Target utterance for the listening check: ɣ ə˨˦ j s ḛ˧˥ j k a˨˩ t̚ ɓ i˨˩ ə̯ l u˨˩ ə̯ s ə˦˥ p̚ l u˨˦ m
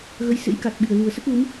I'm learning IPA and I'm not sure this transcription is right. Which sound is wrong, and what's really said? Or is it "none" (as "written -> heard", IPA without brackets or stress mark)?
p̚ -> t̚